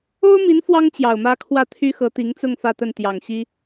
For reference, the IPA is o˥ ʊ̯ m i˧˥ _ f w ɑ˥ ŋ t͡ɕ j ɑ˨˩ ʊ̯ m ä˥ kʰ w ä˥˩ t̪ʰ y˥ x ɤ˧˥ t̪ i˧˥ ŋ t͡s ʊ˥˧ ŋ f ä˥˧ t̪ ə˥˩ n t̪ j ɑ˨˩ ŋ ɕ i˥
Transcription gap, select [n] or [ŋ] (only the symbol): n